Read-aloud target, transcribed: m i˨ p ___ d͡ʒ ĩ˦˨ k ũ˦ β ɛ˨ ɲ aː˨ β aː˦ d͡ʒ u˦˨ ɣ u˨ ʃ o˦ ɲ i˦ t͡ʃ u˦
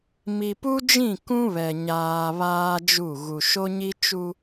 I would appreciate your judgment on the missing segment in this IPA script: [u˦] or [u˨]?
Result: u˦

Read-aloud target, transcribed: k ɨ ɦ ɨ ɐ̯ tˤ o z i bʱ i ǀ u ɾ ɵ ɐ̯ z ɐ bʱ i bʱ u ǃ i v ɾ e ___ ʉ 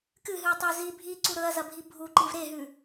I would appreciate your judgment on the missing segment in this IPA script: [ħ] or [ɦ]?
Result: ɦ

